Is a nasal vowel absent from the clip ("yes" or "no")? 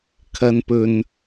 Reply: yes